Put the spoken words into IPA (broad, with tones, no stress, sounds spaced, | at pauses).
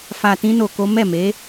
f a˧ t ĩ˦ n o˧ k o˦ m ɛ˦˨ m e˨˦